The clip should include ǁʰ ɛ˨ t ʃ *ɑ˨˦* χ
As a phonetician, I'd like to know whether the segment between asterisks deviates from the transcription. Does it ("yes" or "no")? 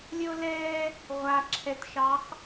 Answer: no